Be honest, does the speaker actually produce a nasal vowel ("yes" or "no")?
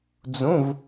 yes